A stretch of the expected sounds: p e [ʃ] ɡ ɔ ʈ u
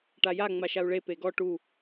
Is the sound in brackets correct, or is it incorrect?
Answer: incorrect